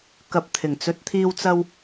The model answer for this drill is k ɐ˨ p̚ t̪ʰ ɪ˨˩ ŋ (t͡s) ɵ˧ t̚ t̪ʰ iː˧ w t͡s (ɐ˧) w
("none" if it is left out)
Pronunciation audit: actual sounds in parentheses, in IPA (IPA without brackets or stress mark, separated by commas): t͡s, ɐ˧